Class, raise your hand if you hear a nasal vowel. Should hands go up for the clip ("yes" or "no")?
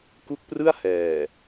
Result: no